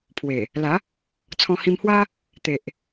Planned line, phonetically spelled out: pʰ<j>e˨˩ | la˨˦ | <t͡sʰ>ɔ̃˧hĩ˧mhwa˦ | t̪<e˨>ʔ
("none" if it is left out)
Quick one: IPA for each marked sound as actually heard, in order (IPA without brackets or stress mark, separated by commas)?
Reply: w, t͡sʰ, e˨